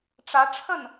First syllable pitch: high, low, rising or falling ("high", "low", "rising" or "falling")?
rising